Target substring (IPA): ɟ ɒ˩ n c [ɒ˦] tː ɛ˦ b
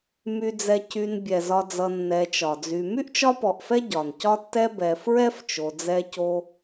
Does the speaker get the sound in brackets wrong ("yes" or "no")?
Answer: no